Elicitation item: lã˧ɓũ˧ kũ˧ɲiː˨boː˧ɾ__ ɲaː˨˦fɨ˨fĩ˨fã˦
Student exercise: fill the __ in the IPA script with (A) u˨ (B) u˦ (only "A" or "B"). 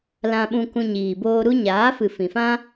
B